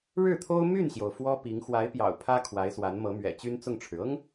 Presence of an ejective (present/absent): absent